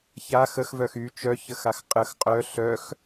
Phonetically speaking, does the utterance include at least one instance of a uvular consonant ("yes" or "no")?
yes